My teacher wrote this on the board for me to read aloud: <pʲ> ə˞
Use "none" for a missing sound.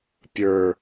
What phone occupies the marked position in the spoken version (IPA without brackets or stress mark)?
pʲ